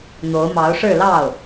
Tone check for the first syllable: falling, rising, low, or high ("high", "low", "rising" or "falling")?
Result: rising